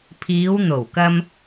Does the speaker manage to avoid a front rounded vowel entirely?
yes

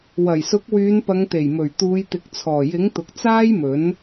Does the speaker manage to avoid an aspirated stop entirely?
no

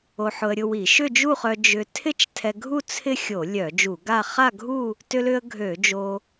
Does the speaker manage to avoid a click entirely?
yes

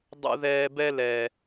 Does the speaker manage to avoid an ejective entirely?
yes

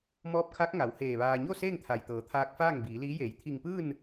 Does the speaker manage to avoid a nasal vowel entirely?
yes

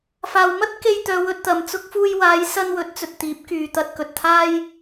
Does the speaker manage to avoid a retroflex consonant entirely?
yes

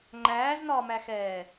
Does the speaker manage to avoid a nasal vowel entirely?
yes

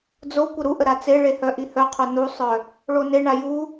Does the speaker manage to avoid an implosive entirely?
yes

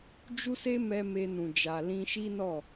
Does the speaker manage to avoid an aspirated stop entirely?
yes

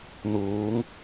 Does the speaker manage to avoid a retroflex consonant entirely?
yes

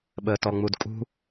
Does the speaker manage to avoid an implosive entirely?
no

